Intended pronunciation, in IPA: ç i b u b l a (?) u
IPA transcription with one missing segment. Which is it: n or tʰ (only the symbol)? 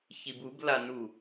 n